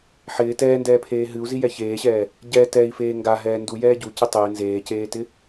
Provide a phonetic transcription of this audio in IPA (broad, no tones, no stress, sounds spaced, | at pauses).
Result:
ħ ɪː t ɛː n d ɛː pʰ eː ɦ ɨ u̯ z i j ɛ ç eː ɕ ɛː | ɟ ɛ t ɛ i̯ f eː ŋ ɡ a ɦ ɛː n d u j ɛː ɟ u c ɪ tˤ ɪː n z eː c eː t ɪ